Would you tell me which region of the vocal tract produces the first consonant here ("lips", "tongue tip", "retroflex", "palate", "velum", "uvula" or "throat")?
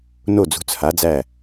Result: tongue tip